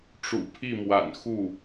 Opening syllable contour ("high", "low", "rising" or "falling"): low